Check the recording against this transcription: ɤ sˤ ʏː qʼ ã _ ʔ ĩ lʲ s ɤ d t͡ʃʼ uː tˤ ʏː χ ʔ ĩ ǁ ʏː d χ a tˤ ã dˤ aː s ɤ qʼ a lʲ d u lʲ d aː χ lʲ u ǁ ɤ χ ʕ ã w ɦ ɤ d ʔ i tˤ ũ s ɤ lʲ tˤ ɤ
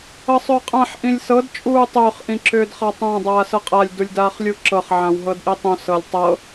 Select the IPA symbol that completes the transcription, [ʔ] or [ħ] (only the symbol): ħ